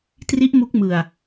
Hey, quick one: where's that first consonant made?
tongue tip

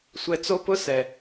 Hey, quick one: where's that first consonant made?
tongue tip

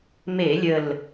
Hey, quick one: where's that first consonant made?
lips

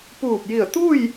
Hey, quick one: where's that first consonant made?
lips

